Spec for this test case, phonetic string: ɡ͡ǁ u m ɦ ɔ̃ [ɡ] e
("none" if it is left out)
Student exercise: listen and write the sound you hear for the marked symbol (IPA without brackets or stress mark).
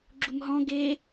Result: ɡ